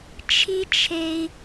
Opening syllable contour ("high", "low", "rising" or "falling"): high